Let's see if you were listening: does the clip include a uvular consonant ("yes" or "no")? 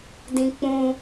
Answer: no